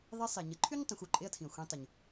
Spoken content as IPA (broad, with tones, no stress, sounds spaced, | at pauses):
ðˤ i˧˥ sˤ e˩ ɲ ə˩˧ ǃʰ y˥ ɲ tˤ õ˩˧ xʷ u˩ ǃʼ e˧ ɐ̯ tʰ ĩ˩ ɐ̯ xʷ ĩ˩˧ tˤ ə˩ ɲ